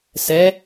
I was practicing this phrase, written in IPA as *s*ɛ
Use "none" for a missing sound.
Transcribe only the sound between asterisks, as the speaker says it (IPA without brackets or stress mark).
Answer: s